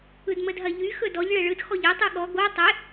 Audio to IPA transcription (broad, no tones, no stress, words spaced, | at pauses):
ɯdmədɦɐʎy xɵdɔʎ ɭɛɭɯd xɔʎe tˤɯɠɔ ɡo tˤe